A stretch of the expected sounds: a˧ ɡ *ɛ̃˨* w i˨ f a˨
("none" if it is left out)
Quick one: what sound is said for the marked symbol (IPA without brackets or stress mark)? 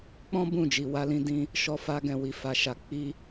ɛ̃˨